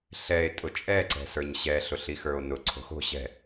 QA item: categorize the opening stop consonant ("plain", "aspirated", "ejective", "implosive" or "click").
ejective